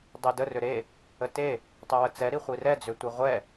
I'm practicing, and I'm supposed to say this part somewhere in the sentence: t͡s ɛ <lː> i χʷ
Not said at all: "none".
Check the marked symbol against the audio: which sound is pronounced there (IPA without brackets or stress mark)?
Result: ɾ